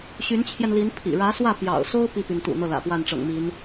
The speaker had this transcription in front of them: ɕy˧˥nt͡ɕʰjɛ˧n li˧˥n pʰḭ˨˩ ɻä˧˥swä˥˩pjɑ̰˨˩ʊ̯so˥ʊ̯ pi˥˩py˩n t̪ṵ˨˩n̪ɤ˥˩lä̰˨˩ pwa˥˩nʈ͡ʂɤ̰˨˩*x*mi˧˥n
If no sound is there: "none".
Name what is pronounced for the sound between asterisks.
ŋ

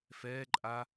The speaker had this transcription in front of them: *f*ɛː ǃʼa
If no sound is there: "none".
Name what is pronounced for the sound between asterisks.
f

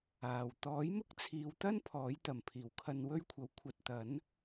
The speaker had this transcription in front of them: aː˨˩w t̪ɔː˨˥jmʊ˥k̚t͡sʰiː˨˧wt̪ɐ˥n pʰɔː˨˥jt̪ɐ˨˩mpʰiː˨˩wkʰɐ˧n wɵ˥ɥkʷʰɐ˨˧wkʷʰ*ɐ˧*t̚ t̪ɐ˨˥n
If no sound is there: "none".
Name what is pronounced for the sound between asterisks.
ɐ˧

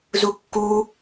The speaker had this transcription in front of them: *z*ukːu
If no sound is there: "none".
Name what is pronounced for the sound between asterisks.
z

